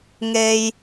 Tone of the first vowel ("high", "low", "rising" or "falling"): high